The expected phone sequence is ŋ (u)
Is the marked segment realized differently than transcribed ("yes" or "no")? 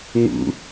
yes